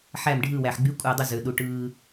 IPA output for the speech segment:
ħ æ˧˩ m ɖʱ ɯ˧˩ w æ˩ ħ ɡ͡b y˨˥ kʷʼ ɑ˧˩ dˤ u˧˩ z ø˩ ɗ u˩ ʈ ɯː˩

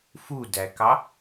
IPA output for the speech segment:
f u d æ k ɑ

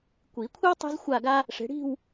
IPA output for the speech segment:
kʷ i˨˩˦ kʷʰ e˥ w tˤ e̤˥ z xʷ a˥˧ ɡ a˥ | ʂ e̤˨˦ ɽ i̤˥˧ w

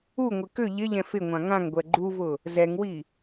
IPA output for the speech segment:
u ŋʷ ɪ k ʏ ʎ ɪ ʎ ɛ̃ f ɪ ŋʷ ã ŋ ã ŋ ɡʷ ɛ ɡ͡ǃ u v ʊ | z ɛ ŋ w i

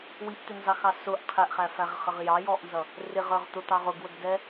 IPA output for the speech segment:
w i ʔ t̪ ɪ n z ɑ x ɑ s ʊ ʔ qʰ ɛ ʔ χ æ f æ ʁ χ ə ʁ j ɑ j ɔ ʔ n z ʌ | r ɪ ʁ ə˞ ʁ t̪ ʊ t̪ ɑ ʁ ʊ ɡ w ə ɡ d ɛ

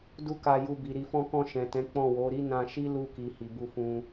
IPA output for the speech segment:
d u˦ k a˧ j u˧ b i˨ ɾ i˨ f ɔ̃˧ k ɔ̃˧ ʃ ɛ̃˨ t ɛ̃˨˦ k͡p ɔ̃˦˨ w o˨˦ ɾ i˦ n ã˧ ʃ i˦ l u˧ k i˨ h i˨ b u˧ f ũ˧

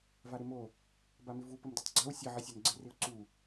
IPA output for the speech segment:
v a ɾ ɪ m o | b a m ɪ v u p ə m d u tˤ ɡ͡ǀ a w sʲ ə ʕ ɪ sʲ a n ɡ͡ǀ ɪ r ɪ ʊ̯ ǀ u

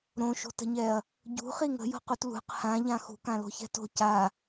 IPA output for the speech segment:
ɾ õ ʃ o̤ t ə̤ ɲ ɛ ɐ̯ | ɟ ṳ χ i ŋ ə̤ j o̤ q u t l ṳ q h ã ʎ ã x ṳ k ã l o̤ ç ɛ̤ t o̤ c a

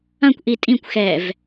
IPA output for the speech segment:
ɐ̃ kʷ ʔ i tʼ ĩ kʷ x ɛ v

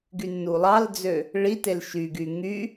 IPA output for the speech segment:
ɡ y nː u lˠ ɑ l d͡z ø | ɭ i t e l ʃ y ɡ y ŋ y

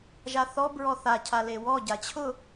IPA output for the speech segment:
ʒ a θ ɔ b ɹ ɔ θ a cʰ a l e w ɔ ɟ a t͡ɕʰ ʊ

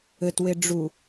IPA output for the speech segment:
ɘ t w e ɖ͡ʐ u

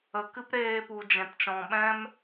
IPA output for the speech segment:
ə˨˦ k ɨ˦ p ɾ eː˧ p u˨ d͡ʒ ɛ̃˨ t t͡ʃ ɔ̃˨ ɓ ɛ̃˦ m

